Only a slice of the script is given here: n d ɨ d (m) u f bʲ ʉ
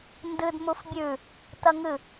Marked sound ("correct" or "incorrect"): correct